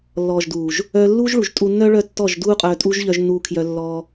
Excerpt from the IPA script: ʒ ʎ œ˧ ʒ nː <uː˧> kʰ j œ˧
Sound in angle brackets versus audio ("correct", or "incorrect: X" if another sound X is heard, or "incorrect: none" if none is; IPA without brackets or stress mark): correct